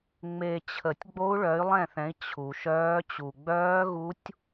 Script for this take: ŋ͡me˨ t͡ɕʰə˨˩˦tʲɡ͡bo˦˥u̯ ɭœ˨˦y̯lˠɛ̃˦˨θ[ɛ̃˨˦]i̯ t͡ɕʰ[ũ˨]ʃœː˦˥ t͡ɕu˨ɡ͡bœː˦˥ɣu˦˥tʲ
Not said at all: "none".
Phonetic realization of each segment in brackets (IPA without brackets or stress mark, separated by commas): ɛ̃˨˦, u˨